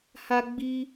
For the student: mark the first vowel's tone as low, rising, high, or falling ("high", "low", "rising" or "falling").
high